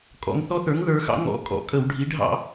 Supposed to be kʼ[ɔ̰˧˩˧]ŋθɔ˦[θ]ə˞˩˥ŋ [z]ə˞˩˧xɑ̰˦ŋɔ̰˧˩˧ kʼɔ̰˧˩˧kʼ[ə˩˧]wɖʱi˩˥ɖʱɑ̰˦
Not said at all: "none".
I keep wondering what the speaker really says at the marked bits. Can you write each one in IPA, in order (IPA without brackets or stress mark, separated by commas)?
ɔ̰˩˧, θ, ð, ə˧˩˧